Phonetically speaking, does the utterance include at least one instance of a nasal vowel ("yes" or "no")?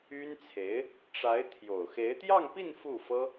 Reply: no